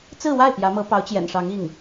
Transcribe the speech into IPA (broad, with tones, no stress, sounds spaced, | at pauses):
t͡s ɹ̩˥˧ w a˥˩ ɪ̯ p j ä˧˥ m ɤ˧˥ p ɑ˧˥ ʊ̯ t͡ɕ j ɛ̰˨˩ n ʂ ɑ˧˥ ŋ i˥˩ ŋ